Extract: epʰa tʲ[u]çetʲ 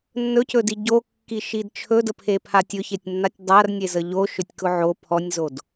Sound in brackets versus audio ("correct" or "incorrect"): incorrect